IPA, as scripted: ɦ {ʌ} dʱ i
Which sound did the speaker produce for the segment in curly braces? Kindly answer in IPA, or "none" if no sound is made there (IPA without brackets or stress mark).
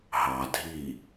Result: ɑ